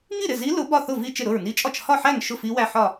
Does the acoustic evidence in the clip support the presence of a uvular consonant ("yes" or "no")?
no